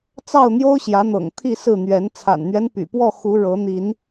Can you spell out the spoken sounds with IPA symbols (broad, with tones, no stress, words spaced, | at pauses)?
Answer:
t͡sɑ˥˨ʊ̯n̪jo˦ʊ̯ɕjä˨˦n̪ɤ̰˨˩ŋ t̪ʰi˥˨sɹ̩˥˨n̪ɥɛ˨˦n t͡sʰa̰˨˩nn̪ɥɛ˦n py̰˨˩pwɔ˥˨ xu˨˦ ɻɤ˨˦n̪i˨˦n